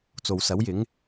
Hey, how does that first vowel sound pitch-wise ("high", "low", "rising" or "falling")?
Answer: low